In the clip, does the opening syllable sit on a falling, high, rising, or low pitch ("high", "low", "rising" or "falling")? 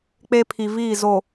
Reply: high